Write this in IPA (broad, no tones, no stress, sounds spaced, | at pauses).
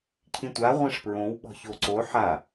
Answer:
cʰ ĩ tʷ a ʁʷ ɛ̃ ʂ p ɹ õ w ɓ ɔ̤ ç o ǀ o ħ a